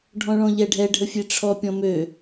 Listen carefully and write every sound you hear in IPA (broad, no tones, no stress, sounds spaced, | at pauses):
ɖʱ ɔ̃ ɭ ɔ̃ ʎ ɛ ɖʱ ɛ ɖʱ ə fʲ e ʈ͡ʂʰ ɔ pʲ ɔ̃ m ø